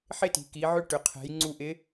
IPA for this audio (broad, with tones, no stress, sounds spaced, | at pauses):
ħ ɪ˥ t i̤˩ k i˩˧ ʕ ʏ˥ ʈ ʏ˩ qʰ ɛ̤˩˧ j ŋ͡ǀ u˧ ʔ ɪ˧˥